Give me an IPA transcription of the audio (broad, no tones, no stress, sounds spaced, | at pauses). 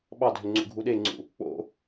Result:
ɓ ɑ dʱ ʏ ŋ͡ǀ ṵ ɡʱ u ɗ e ŋ͡ǀ ṵ | k͡p o̰